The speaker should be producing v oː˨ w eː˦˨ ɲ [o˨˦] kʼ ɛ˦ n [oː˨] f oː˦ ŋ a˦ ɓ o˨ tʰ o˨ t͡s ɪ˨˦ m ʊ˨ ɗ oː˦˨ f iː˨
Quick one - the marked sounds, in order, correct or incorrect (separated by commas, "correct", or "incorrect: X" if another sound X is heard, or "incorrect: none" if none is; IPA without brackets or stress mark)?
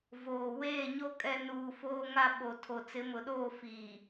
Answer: incorrect: o˦, incorrect: uː˨